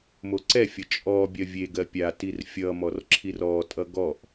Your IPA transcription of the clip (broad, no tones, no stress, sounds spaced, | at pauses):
m o ǀ ɛ fʲ ʌ t͡ʃʼ ɔ bʲ ɜ vʲ e ɡ ɜ pʲ a t i r fʲ ʌ m ɔ r ǁʰ i r ɔ tʼ ʌ ɡ ɔ ʔ